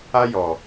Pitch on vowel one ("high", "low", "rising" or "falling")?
high